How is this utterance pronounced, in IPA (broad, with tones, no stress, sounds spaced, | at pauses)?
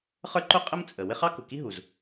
χ ə˞˥ ǃ ʊ˥ qʼ ə˥ m t͡sʼ ə˩ w ɪ˥ χ ɑ˥ k ʊ˩ k i˥ ɦ u˩ z